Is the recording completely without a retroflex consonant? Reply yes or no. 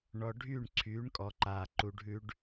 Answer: no